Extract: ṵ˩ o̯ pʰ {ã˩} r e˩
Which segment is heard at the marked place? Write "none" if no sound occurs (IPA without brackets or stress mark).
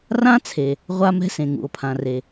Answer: ã˩